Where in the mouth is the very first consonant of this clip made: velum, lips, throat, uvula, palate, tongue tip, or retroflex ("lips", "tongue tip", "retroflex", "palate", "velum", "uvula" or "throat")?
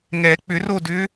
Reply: velum